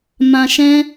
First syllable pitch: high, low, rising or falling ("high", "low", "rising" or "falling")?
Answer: low